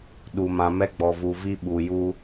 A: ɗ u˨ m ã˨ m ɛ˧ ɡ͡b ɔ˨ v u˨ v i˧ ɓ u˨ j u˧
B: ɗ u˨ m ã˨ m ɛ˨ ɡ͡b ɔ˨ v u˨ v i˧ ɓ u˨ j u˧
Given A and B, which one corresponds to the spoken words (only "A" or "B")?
A